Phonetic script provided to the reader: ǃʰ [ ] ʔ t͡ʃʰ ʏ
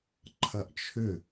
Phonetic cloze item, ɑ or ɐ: ɐ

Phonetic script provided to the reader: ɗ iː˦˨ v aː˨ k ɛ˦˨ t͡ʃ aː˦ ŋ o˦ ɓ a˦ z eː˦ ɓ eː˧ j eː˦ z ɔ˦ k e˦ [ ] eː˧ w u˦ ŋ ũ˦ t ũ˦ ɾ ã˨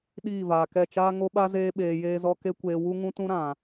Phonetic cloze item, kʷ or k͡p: kʷ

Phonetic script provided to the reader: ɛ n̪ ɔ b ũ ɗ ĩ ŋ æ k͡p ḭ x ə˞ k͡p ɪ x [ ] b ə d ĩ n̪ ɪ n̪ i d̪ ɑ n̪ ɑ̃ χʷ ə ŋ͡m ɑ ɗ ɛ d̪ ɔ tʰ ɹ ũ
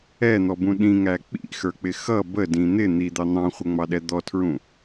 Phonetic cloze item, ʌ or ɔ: ʌ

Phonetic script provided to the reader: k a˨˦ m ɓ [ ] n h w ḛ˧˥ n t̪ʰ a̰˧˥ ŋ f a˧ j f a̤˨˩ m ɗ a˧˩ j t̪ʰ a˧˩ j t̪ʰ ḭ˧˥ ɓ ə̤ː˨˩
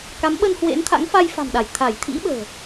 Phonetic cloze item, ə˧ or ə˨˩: ə˧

